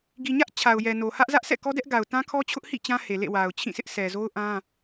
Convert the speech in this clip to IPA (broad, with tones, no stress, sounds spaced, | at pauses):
ɡ i˨ ɲ ä˦ ʔ t͡ɕʰ a˨ ʊ̯ j ɛ˨ n o˨ h ä˦ ʔ z ä˦ ʔ s ɛ̰˦˨ k ɔ˦ d ɛ˦ ʔ ɡ a˨ ʊ̯ t ã˦ kʰ ɔ˦ t͡ɕʰ ʊ˦ ʔ h ḭ˦˨ t͡ɕ ã˦ h e˨ l ḛ˦˨ w a˨ ʊ̯ t͡ɕʰ ĩ˦˨ s ɪ˦ ʔ s ɛ˨ z o˦ ʊ̯ ʔ ã˦